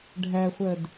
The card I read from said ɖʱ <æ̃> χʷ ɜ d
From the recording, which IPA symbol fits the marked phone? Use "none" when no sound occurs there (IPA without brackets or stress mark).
æ